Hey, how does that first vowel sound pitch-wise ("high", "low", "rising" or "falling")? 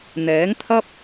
rising